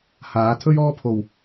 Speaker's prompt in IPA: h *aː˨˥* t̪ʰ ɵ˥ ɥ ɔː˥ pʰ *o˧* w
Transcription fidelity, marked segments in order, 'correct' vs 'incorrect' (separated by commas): correct, incorrect